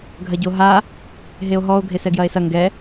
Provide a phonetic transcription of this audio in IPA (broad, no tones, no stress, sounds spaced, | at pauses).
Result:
ɡʱ ɐ ɟ o ɦ a | ɦ e o̯ ɦ ɔ o̯ ɡʱ e s ɛ ɡ j ɐ e̯ s ɐ ŋ ɡ ɛ